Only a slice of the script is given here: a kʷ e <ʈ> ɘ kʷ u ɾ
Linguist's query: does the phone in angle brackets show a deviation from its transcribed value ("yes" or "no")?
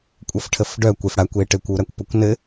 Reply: no